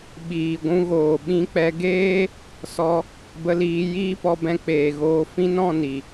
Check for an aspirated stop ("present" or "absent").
absent